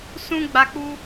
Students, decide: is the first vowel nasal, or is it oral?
nasal